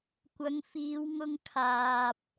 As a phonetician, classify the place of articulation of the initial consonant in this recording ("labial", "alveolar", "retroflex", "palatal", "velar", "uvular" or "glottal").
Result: velar